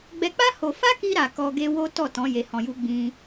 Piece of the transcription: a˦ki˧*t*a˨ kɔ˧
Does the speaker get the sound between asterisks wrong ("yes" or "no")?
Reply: yes